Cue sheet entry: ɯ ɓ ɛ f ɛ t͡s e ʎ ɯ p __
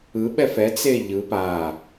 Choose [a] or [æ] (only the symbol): a